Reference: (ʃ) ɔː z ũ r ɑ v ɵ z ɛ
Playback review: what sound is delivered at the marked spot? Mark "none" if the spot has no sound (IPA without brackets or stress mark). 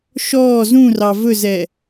ʃ